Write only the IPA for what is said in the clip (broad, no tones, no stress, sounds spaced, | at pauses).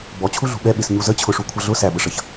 b ɔ t͡ɕʰ u ɮ ṳ ɓ ɛ ɓ ɪ s ɲ u z ə t͡ɕʰ ʊ ʂ u kʷʰ ʌ ɮ ʊ s æ b ə ʂ ʌ ç